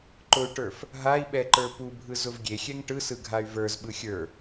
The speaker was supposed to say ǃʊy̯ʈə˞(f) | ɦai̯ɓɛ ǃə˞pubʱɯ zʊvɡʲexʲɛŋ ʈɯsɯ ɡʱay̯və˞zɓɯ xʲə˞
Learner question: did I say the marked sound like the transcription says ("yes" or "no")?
yes